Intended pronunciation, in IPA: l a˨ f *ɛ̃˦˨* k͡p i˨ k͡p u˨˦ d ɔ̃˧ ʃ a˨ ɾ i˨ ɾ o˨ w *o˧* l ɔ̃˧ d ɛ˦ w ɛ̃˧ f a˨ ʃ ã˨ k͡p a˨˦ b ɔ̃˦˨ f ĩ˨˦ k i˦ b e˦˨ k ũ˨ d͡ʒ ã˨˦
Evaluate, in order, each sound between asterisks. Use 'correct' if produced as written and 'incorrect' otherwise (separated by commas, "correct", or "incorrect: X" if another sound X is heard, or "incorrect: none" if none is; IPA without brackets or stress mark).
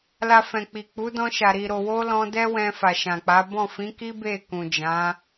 incorrect: ɛ̃˨, correct